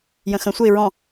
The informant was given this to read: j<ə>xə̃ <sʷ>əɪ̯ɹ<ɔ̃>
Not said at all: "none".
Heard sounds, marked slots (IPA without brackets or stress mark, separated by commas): ə̃, sʷ, ɔ̃